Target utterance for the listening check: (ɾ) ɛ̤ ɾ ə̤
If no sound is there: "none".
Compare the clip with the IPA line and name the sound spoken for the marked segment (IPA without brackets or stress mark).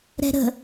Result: ɾ